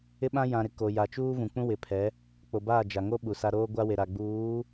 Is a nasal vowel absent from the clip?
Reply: no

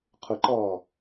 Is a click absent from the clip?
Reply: no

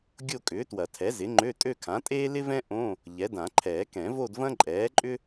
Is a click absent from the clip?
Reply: no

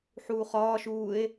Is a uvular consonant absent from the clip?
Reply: no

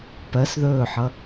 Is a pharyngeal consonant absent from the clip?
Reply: no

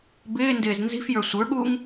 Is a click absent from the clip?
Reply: yes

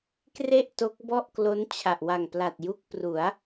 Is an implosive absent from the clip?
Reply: yes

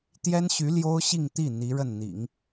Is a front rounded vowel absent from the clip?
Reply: no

